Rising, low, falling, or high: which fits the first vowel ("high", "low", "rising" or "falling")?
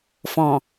low